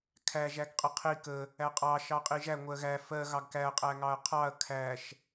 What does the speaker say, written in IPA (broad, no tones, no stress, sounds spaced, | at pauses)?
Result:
kʰ æ ʒ æ ɡ qʼ ə qʰ i k ə | æ qʼ ɑ ʃ ɑ qʼ i ʒ æ ŋʷ ɜ ɣ æ f ɜ ɣ ɑ ɡ k æ ɐ̯ qʼ æ ŋ ɑ ɐ̯ qʰ ɑ ɐ̯ kʰ æ ʃ